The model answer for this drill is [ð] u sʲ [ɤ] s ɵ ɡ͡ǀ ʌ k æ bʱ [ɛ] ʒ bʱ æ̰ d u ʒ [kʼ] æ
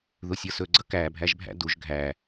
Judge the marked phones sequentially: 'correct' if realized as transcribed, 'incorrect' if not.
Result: correct, correct, incorrect, incorrect

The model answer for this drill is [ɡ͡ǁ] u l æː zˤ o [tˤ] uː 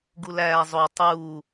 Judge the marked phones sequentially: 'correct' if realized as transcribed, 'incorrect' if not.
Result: incorrect, correct

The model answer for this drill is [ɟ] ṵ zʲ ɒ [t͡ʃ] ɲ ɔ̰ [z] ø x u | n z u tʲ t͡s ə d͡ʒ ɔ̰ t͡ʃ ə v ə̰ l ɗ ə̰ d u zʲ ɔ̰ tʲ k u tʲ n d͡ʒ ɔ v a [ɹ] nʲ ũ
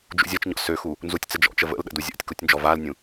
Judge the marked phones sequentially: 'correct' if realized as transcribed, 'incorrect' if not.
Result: incorrect, correct, incorrect, incorrect

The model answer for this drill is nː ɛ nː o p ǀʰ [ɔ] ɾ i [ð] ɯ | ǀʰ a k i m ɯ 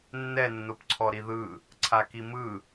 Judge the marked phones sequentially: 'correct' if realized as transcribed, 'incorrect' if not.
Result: correct, correct

